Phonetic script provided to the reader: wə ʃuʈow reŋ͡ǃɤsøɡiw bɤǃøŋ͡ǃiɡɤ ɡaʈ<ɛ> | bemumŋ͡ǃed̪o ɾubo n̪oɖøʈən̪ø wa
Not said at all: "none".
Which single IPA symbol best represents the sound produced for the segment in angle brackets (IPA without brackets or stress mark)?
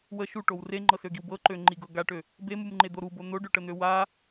ø